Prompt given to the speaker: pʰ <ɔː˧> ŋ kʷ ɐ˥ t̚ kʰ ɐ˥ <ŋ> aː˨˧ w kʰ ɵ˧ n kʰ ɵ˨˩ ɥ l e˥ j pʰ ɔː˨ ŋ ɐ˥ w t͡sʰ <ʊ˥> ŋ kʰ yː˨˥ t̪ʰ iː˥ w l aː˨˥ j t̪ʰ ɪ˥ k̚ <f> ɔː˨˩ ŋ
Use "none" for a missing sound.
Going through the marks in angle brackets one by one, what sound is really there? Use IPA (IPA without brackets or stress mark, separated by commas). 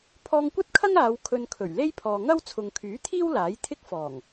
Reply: ɔː˧, ŋ, ʊ˨, f